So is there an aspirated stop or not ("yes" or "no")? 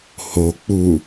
no